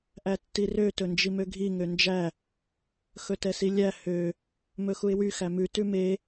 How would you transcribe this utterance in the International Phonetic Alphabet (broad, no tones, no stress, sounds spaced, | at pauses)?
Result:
ʔ æ tː i r ø t ɵ n d͡ʒ i m ø ɡʱ i ŋ ø n d͡ʒ æ | x ɵ t ɛ s i lʲ æ h ø | m ɵ x u ɪ̯ w y x æ m ʉ t ʉ m e